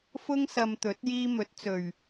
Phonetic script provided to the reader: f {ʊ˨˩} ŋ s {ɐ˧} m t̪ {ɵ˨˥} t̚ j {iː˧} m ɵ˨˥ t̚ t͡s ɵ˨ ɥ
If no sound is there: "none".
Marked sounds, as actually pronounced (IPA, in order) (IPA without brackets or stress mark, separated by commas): ʊ˥, ɐ˧, ɵ˨˥, iː˧